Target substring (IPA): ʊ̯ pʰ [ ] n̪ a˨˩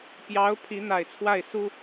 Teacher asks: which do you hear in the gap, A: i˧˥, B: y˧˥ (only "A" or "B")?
A